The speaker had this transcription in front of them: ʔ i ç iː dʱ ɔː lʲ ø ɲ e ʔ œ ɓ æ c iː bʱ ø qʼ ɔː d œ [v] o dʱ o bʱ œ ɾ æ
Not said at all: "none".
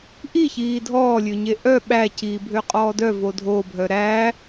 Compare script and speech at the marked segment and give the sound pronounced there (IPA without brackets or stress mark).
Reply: v